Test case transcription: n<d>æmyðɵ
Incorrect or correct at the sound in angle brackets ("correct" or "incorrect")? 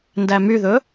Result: correct